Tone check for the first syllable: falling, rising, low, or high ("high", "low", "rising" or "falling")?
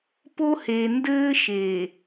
high